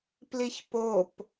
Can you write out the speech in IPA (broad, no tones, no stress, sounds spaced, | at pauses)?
p l i ç p o p